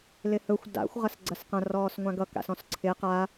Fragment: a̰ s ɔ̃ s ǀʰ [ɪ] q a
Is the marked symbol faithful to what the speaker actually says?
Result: yes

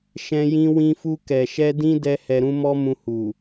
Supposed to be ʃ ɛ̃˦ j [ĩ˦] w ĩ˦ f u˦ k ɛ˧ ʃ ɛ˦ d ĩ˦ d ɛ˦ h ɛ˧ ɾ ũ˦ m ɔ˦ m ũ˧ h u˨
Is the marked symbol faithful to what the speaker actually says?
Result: yes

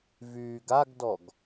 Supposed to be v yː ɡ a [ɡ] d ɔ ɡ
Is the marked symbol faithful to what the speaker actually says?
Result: yes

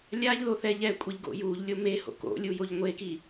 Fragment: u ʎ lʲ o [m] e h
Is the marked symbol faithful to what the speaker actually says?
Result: yes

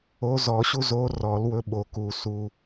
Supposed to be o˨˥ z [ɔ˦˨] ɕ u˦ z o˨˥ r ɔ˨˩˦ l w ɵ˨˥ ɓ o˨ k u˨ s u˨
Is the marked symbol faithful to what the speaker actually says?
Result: no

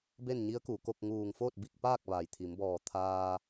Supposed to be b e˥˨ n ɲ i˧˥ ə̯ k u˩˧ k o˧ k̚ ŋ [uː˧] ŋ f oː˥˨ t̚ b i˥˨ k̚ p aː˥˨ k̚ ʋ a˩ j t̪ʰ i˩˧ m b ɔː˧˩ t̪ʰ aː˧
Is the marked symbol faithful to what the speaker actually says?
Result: no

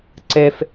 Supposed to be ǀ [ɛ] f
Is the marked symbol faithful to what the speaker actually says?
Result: yes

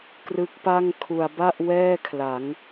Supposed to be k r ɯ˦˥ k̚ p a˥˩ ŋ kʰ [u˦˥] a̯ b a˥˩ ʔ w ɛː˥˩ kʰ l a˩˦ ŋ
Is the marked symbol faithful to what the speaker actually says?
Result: no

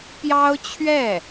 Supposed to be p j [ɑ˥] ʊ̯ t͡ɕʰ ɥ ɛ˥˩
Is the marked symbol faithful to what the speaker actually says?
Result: yes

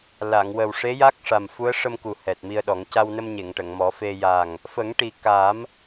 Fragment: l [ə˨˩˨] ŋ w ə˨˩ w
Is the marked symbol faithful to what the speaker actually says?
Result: no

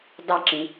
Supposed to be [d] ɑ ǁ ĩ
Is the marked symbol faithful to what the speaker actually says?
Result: yes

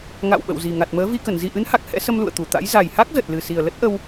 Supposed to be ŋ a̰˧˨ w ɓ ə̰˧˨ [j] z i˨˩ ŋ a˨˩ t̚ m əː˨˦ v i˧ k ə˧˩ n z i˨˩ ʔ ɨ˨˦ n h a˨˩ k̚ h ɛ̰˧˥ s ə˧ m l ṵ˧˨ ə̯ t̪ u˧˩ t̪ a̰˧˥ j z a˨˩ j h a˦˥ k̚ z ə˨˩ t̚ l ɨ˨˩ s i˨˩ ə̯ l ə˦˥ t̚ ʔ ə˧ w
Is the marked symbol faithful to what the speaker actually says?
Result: no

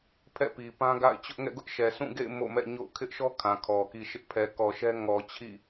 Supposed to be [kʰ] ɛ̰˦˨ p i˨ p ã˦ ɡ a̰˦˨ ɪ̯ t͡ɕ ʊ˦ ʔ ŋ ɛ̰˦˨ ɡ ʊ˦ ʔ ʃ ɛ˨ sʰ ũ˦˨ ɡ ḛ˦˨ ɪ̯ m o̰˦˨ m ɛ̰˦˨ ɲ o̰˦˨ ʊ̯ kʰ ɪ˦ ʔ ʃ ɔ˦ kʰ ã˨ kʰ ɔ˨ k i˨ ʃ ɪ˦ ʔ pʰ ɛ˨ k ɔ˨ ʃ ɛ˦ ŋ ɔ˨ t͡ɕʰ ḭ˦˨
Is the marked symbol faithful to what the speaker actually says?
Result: no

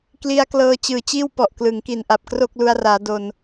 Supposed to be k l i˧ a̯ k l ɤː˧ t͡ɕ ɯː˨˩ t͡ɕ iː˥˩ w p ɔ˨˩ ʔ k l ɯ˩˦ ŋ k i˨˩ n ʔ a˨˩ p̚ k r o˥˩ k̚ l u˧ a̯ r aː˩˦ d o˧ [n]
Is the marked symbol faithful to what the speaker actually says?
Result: yes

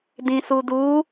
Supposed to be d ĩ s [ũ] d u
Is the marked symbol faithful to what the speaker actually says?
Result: no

